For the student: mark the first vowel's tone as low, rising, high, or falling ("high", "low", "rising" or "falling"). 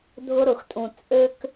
high